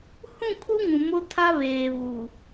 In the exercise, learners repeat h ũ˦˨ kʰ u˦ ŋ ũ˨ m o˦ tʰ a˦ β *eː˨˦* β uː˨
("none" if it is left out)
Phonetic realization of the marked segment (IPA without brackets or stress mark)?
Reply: eː˨